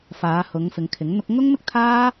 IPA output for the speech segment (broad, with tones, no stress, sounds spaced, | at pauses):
f aː˨˧ h ʊ˨˧ ŋ f ɪ˨˧ ŋ kʰ ɪ˨˥ ŋ n̪ ʊ˥ k̚ ŋ ʊ˥ ŋ m ɪ˥ k̚ t̪ʰ aː˥